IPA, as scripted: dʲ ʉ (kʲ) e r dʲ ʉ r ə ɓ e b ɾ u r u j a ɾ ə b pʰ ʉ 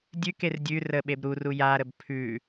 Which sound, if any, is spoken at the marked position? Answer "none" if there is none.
k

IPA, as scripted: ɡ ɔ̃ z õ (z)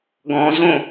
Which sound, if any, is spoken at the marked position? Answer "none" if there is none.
none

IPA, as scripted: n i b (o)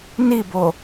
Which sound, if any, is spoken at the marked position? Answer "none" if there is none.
o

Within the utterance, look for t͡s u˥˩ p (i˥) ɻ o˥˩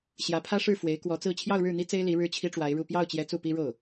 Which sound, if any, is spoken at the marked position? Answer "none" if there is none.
i˥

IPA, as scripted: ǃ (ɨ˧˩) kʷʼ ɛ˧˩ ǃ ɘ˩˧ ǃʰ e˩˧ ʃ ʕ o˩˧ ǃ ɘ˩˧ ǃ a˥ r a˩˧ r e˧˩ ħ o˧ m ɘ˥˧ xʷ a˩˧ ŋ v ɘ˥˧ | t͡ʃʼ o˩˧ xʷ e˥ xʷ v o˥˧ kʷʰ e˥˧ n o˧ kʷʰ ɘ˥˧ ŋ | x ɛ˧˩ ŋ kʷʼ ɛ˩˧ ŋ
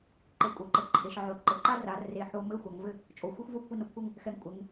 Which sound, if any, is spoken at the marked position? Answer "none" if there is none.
e˧˩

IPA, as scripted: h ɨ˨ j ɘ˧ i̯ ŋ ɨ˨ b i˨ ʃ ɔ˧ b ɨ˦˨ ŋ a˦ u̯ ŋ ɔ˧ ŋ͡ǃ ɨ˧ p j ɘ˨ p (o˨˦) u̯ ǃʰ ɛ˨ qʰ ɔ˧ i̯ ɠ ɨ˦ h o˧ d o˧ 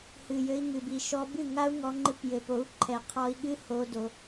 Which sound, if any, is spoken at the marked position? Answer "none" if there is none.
o˨˦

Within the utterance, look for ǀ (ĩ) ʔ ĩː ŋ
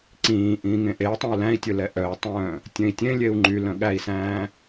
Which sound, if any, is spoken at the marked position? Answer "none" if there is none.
ĩː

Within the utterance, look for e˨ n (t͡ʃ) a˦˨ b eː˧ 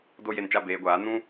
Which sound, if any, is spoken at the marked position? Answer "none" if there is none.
t͡ʃ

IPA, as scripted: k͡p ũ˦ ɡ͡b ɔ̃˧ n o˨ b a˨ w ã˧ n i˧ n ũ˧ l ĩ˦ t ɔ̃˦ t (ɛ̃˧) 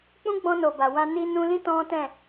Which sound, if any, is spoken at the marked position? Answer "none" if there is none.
ɛ̃˦˨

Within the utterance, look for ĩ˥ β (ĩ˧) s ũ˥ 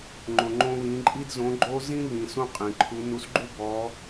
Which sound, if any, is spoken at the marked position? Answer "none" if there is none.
ĩ˧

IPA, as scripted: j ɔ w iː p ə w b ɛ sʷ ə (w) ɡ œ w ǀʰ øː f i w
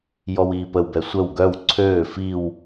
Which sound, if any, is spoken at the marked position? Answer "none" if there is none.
w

